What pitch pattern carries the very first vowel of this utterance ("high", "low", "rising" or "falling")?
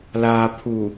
low